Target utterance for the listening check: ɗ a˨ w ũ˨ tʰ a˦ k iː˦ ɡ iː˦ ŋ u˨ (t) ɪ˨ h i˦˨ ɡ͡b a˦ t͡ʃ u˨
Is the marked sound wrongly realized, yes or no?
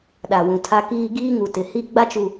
no